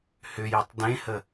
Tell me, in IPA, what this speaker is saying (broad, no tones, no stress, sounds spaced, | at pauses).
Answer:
h ʏ j ɛ tˤ d ẽ h ə